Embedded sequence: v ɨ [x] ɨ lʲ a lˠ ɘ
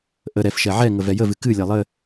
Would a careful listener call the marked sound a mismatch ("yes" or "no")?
yes